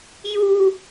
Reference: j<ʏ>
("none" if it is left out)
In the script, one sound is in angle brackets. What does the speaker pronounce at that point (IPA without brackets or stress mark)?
u